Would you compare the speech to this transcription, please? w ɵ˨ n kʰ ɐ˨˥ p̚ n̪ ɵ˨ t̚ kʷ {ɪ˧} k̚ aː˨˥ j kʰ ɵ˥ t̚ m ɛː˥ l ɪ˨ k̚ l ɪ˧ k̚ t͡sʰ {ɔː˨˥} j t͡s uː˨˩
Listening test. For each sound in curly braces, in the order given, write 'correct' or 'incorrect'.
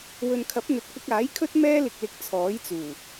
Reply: correct, correct

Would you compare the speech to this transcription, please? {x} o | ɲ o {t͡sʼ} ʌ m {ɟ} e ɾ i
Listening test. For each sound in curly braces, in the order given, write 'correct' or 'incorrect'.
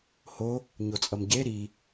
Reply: incorrect, correct, correct

